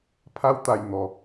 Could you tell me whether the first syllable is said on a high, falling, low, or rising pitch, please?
high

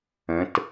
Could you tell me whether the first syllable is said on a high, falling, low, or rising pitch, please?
rising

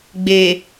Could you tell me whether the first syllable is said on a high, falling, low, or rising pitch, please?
low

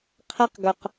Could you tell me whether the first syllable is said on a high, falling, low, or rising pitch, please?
high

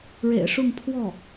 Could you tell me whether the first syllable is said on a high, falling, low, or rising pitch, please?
low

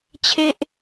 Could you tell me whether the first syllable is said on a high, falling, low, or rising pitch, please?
high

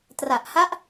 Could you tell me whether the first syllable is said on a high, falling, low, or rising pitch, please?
low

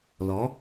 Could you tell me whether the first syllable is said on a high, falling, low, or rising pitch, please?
rising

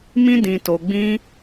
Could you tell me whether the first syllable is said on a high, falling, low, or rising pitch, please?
high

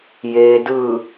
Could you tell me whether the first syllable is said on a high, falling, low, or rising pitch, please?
low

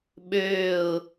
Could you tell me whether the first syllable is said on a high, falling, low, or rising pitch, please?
falling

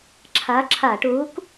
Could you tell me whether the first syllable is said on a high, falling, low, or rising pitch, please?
rising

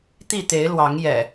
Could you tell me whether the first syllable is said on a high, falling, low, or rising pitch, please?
falling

